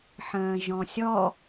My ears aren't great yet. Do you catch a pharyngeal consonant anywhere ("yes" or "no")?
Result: yes